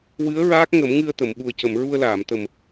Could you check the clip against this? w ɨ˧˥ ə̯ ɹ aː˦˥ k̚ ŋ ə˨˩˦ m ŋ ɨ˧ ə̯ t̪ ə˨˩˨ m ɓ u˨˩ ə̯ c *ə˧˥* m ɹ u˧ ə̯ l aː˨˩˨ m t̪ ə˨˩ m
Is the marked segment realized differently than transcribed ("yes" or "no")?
yes